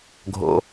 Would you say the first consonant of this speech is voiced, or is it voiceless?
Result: voiced